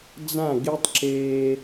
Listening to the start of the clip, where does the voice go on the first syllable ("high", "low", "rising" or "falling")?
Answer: falling